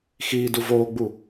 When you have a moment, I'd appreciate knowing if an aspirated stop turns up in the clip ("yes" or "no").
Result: no